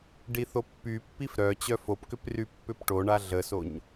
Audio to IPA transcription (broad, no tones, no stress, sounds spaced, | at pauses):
ɖ i θ o pː y pː i f ɾ œ t͡ɕ œ f o p k ʏ p r y pː ʏ p ʈ o ɳ a ɮ ə s o ɲ